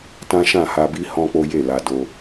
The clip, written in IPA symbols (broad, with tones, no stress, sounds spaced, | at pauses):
t ã˦ ʃ ã˦˨ h a˧ b i˦ h ɔ̃˦ k͡p o˦ j e˦˨ l a˧ d o˧